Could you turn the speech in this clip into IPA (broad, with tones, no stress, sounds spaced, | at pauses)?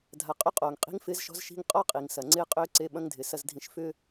dʱ a˨ qʼ ʏ˦ qʼ oː˨ ŋ qʼ i̤˦ ŋ f ɪː˦ z ʃ ɔ̤˦ z ʃ i̤˦ ŋ qʼ ɔ˦ qʼ i˨ ŋ s ɐ˨ ŋ͡ǀ ɪː˦ qʼ ʏː˦ ǀ e˦ ɓ ɐ̃˦ ŋ dʱ ɪ˨ s ɐ˨ z dʱ ĩ˨ ʃ f ʏː˦